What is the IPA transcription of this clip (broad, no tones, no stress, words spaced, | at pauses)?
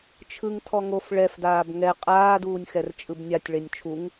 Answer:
t͡ʃʰɯŋ tʰɔŋof ɭɛfdaːb ŋɛ qʼaːduːnʲxɛr t͡ʃʼɯbnʲatʲɭenʲ t͡ʃʰuŋ